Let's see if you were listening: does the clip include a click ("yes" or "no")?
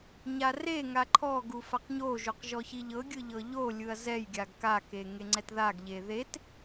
yes